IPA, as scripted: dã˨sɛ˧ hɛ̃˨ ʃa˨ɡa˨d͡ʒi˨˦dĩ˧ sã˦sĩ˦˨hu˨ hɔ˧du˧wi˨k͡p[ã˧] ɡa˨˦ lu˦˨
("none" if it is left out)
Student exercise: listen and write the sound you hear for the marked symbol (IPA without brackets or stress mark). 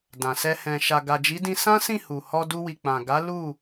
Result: ã˨